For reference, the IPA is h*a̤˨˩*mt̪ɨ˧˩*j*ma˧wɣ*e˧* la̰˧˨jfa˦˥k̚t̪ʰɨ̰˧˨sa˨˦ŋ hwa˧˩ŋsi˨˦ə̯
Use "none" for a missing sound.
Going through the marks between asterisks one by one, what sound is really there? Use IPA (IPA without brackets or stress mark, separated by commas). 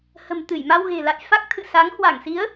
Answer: ə̤˨˩, j, e̤˨˩